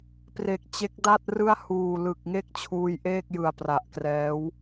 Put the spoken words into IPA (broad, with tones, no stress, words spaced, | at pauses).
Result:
pre˨˩k̚t͡ɕe˦˥k̚ da˥˩t̚rɯ˥˩a̯huː˨˩ lɯ˨˩k̚ ŋe˥˩k̚t͡ɕʰuː˧jʔeː˥˩k̚jɯ˨˩a̯ pra˨˩ʔkrɛː˦˥w